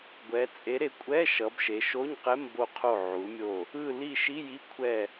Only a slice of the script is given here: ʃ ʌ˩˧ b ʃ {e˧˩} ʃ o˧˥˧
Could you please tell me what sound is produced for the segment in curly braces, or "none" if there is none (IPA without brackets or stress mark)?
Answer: e˩˧